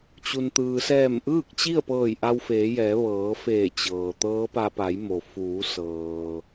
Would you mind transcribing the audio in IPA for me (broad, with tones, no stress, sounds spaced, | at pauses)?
t͡ɕ u˩ n t̪ ɯː˩ s ɛː˧˩ m ʔ ɯː˥˨ k̚ t͡ɕ i˥˨ ə̯ p ɤː˧˩ j ʔ a˧ w f eː˩˧ j ɛː˩˧ ʋ ɤː˩˧ f eː˧˩ t͡ɕ ɤː˩ t̪ ɤː˧˥ p a˧ p a˩˧ j m o˩ f uː˩˧ s ɤː˩